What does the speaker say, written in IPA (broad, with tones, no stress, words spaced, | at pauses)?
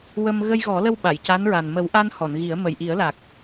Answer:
wə˧m ɣə˧jɣɔ˨˩˦lə˧w ɓa˨˩˨jca˧˥nɹa˨˩n mə˨˩˦wʔa˧n hɔ˨˩˨nɣi˨˩˦ə̯ mə˨˩jʔi˨˩˦ə̯la˨˩k̚